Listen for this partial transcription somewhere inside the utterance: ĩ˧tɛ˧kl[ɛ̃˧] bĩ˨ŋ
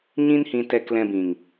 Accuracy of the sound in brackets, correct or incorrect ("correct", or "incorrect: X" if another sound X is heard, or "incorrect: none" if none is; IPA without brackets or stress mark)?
correct